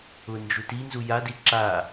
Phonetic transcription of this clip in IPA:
ʊ n d͡ʒ u t i n z u j a d i ǁ a

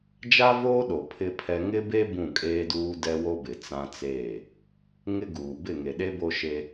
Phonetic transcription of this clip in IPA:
d͡ʒ a˦ v oː˦ ɗ o˨ pʰ ɪ˦ pʰ ɛ˦ ŋ ɪ˦ b e˦ b ũ˦˨ kʼ eː˦ d uː˦ d ɛ˦ w o˦ b ɪ˨ t͡s ã˦ t͡s eː˦˨ | ŋ ɪ˦ ɡ uː˨ b ɪ˦˨ ŋ e˨ ɗ e˦ b o˦ ʃ e˦

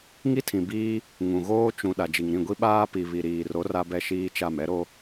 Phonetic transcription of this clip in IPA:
ŋ i˦ tʰ ĩ˨ b iː˦ | ŋ ũ˨ ɣ oː˦ t͡ʃ ũ˨ ɗ a˨ d͡ʒ i˨ ŋ ɾ ĩ˦˨ ɡʷ i˦ ɓ aː˦ p i˨ β i˨ ɾ iː˨ r o˨˦ r a˦ b ɛ˦ ʃ iː˦ t͡ʃ a˦˨ m ɛ˦ ɾ o˦

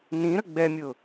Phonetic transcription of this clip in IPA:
n ĩ ɾ ə ɡ͡b ɛ mʲ ʊ

